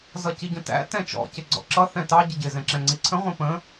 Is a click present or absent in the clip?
present